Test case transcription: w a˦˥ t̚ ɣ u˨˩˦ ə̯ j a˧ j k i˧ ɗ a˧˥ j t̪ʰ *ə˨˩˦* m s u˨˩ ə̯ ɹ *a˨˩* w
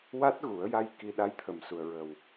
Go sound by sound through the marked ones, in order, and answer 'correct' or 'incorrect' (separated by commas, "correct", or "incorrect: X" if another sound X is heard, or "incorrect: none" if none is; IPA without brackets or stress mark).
incorrect: ə˨˩, incorrect: ə˨˩